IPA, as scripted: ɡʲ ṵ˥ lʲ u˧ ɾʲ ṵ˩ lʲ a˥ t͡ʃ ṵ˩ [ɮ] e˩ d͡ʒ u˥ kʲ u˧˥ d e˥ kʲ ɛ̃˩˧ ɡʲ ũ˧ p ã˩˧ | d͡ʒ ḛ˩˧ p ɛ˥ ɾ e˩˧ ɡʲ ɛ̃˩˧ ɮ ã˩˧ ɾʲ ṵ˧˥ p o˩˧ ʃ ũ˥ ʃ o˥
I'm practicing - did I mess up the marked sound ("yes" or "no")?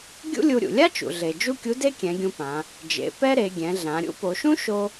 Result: no